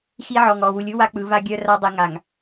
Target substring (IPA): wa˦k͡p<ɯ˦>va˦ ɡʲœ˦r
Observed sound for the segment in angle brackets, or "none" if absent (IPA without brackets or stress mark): ɯ˨˦